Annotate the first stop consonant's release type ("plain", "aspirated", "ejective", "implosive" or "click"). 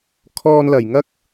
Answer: aspirated